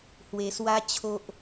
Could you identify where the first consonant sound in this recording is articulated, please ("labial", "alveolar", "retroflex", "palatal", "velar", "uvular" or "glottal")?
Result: glottal